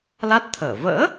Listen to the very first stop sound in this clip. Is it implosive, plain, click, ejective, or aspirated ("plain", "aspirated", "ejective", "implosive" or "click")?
plain